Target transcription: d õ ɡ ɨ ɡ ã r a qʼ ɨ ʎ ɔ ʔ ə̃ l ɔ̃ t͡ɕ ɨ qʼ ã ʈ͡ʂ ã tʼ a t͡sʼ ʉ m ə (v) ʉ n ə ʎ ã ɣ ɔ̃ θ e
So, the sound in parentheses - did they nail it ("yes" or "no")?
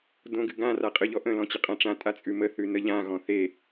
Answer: no